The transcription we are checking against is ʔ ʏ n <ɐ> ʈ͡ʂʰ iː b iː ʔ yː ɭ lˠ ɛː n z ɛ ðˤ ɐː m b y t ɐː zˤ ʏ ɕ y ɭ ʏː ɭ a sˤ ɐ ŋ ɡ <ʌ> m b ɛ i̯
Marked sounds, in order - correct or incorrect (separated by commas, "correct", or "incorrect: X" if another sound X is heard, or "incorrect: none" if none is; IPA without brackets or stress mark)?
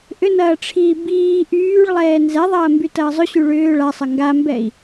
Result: incorrect: ɐː, incorrect: a